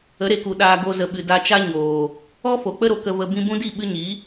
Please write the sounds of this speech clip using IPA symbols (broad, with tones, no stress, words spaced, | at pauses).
ə˨˦ɾe˨ku˨ ɗaː˨ɡo˨ zə˨ɓɨ˨ da˧t͡ʃa˦ɲoː˨ | ɔ˦ fo˨k͡pə˦ɾo˨ kə˧və˧ bĩ˧bũ˦di˦˨ ɓɨ˧ɲi˨˦